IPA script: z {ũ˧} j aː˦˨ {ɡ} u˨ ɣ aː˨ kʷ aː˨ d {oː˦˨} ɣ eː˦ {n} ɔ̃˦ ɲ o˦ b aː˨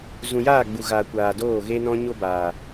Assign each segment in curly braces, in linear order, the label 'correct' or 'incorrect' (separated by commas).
incorrect, incorrect, correct, correct